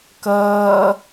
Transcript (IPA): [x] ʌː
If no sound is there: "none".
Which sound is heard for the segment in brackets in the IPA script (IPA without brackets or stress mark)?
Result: k